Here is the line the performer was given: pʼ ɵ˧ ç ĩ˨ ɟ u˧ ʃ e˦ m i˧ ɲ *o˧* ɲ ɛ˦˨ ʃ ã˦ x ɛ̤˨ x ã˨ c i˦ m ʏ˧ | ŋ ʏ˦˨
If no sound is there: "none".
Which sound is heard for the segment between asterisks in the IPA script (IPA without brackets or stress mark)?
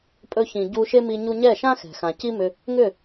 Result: u˧